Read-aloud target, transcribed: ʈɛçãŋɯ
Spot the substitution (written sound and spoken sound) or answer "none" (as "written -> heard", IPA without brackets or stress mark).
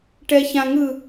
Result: none